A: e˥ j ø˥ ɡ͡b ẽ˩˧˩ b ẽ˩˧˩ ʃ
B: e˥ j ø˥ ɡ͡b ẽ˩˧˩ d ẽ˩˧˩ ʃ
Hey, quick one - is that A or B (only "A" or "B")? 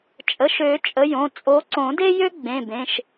A